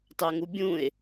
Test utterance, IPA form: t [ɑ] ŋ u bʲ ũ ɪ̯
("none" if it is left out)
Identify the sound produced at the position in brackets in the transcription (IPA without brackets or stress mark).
ɑ